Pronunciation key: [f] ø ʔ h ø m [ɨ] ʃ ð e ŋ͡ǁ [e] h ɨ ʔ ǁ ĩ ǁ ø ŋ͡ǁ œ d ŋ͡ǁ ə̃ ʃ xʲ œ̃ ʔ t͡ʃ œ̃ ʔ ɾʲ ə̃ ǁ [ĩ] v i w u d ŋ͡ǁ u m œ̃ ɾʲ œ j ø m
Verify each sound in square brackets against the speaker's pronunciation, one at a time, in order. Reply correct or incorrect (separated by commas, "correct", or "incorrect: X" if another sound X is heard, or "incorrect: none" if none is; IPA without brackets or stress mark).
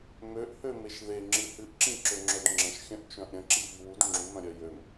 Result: incorrect: m, incorrect: e, incorrect: ɨ, incorrect: i